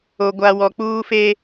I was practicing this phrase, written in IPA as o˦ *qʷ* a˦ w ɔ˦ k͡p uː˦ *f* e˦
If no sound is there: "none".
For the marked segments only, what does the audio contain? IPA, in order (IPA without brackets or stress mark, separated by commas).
ɡʷ, f